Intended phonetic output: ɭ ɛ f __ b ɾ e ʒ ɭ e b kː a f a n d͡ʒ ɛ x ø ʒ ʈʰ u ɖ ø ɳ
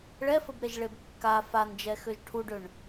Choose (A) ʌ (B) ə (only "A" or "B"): B